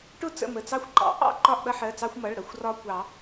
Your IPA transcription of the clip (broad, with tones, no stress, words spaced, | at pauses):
ʈʊ˥˨t͡sə̰˩˧˩ mə˩˧˩t͡sɑ˦xʷ ǃɑ̰˨˩˦ʔɑ̰˥˨ ǃɒ˥˨ʔɗʌ˦ħɜ˩˧˩t͡sɑ˦xʷ mʌ˩˧˩ɭɾʌ˥˨xʷ rɒ˦kʷɑ˨˩˦